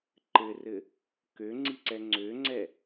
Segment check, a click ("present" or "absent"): present